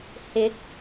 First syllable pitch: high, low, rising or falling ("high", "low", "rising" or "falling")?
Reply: rising